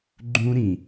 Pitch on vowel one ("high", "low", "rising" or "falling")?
high